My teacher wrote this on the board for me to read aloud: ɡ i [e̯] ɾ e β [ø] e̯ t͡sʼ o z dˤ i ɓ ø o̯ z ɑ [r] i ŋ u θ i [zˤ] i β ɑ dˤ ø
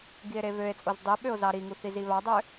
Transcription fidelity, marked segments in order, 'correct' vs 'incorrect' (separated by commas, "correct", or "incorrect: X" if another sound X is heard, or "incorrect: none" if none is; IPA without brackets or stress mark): correct, correct, incorrect: ɾ, incorrect: z